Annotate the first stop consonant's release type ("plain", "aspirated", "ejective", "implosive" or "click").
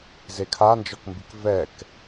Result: aspirated